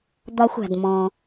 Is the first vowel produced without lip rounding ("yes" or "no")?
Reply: no